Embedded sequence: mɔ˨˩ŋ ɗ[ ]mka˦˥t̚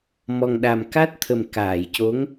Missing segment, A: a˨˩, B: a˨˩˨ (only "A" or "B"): A